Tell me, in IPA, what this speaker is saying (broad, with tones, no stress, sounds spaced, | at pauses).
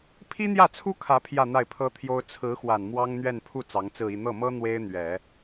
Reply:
pʰ i˥ n̪ j ä˥˩ t͡sʰ u˥ kʰ ä˧˥ pʰ j ä˥˧ n̪ a˥˩ ɪ̯ pʰ ɤ˥ t̪ʰ j o˥ ʊ̯ t͡sʰ ɹ̩˧˥ x w a˨˩ n m w ɑ˥ ŋ n̪ ɥ ɛ˥˧ n pʰ u˥˩ t͡s ɑ˧˥ ŋ t͡s ɹ̩˥˧ i˥˧ n̪ ɤ˥˩ m ɤ˥ n̪ w e˥ ɪ̯ n̪ ɥ ɛ˨˩˦